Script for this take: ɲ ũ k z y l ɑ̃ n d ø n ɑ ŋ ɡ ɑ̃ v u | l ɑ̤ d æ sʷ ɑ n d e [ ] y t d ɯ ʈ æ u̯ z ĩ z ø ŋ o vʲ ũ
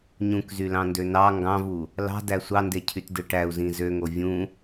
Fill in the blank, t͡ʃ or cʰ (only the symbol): cʰ